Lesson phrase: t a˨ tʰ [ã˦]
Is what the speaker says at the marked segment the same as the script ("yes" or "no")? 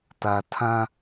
yes